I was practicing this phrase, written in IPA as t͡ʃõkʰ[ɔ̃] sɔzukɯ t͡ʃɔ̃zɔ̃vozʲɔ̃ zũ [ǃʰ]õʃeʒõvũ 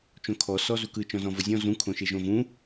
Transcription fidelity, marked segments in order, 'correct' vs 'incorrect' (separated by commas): incorrect, incorrect